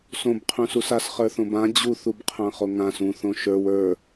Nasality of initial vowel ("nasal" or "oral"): nasal